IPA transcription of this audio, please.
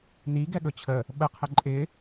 n i ɡ ɛ ɠ ɵ t͡ɕʰ ə | ɓ ə qʰ ə ǃʼ ɪ

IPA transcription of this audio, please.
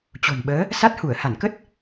t͡ɕ o̤˨˩ n ɓ əː˨˦ | s a˦˥ t̚ h u˧˩ ə̯ h a˧˩ n k ə˦˥ t̚

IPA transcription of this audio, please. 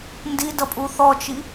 n d i d ʌ pʼ u θ ɔ t͡ʃ i

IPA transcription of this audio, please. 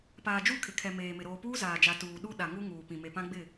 p aː˨ d͡ʒ u˦˨ kʰ ɪ˨ kʰ ɛ˨ m eː˨ m ɪ˨ ɾ oː˨ p uː˦ z aː˨ d͡ʒ a˨ t uː˨ ɗ u˦ ɗ a˨ ŋ u˦ ŋ uː˨ p ĩ˨ m e˨ p ã˦ ɡ͡b ɪ˦˨

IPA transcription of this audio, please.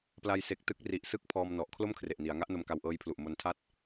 p l a˧ j s e˨˩ k̚ t ɯ˦˥ k̚ r i˨˩ ʔ s ɯ˥˩ k̚ pʰ ɔː˧ m n ɔ˨˩ ʔ kʰ l o˥˩ m kʰ r e˨˩ ʔ n i˩˦ a̯ ŋ a˦˥ ʔ n o˧ m k a˧ w ʔ ɤː˦˥ j pʰ l u˨˩ ʔ m o˧ n tʰ a˥˩ t̚

